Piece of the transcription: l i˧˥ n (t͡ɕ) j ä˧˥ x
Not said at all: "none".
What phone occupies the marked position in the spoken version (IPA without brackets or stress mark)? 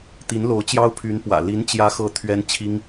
t͡ɕ